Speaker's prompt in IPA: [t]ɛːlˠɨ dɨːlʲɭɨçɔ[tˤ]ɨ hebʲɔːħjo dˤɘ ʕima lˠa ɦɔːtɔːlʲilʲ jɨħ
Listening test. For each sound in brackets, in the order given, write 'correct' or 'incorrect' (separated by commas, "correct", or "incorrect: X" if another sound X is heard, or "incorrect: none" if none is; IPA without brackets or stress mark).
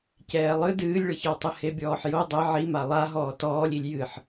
incorrect: c, correct